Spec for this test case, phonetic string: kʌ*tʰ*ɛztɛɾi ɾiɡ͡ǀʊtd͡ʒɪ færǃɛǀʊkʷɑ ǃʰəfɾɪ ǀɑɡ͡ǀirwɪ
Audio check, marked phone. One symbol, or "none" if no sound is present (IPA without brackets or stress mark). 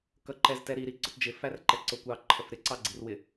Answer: ǃ